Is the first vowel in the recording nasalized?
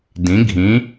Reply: yes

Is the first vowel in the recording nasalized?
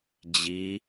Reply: no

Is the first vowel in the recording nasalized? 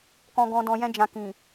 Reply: yes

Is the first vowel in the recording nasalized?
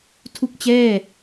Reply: no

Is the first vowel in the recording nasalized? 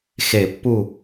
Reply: no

